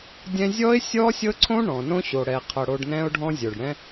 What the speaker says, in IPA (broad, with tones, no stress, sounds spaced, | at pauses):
dʲ ɛ̃˧ zʲ ɔ˦ ɪ̯ sʲ ɔ˦ sʲ ɤ˦ ǀʰ õ˦ ɳ ɔ̃˨ n õ˦ ɕ o˨ ɽ ɛ˨ qʰ ɤ˨ ɽ o˧ ɖ n ɛ̃˦ ʊ̯ ɖʱ ɔ̃˦ zʲ o˨ ɖ ɽ ɛ̃˦